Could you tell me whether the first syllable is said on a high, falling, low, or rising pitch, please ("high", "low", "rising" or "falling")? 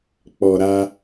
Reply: low